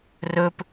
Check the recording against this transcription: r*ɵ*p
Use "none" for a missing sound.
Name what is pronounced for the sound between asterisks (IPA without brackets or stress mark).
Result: ɵ